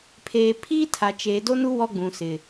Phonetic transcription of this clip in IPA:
pʰeː˨pʰiː˦tʰa˨t͡ʃeː˨ do˦nu˦ wɔ˦ɡ͡bũ˨sɪ˨

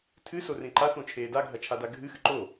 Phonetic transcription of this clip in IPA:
tʰɨsorẽ ǃaθõt͡ʃʰeː daɡʱɐt͡ʃʰada ɡʱɨxɨ ǃo

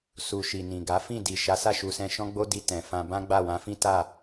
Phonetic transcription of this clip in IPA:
su˨ ʃi˨nĩ˨ɡa˨˦ fĩ˦˨di˨ʃa˨˦ sa˦˨ʃu˧sɛ̃˧ʃɔ̃˦ ɡ͡bo˦di˧ tɛ̃˨fã˧ bã˦ɡ͡ba˦˨wã˨˦fĩ˦ ta˦˨

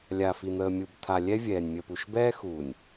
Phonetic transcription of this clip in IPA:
lʲa˨ fi˨n̪əː˨ mʲu˨bt̪ʰa˨lʲɛ˦ vʲɛː˨nʲ mʲə˨pu˨ʃbɛː˦xu˨nʲ

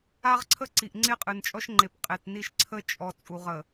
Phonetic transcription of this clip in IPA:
a˦ʁǀʰə˦ǀi˨ʔ ŋ͡ǀe˦qʼɨ˨nt͡ʃʼɔ˦ʃŋ͡ǃe˨p qʼe˨tni˦˨ʃǀʰə˦ t͡ʃʼɔ˨ t͡sʼu˨ʁə˨

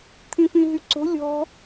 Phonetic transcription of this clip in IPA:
t̪ʰĩfĩɦyǀo̤ lʲɔ̤

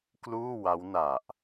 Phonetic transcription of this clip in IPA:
kluː˥˩wa˦˥wna˨˩ʔ

